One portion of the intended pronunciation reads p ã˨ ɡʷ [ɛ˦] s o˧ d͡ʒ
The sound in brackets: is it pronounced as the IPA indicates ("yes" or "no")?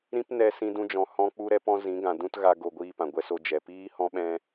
no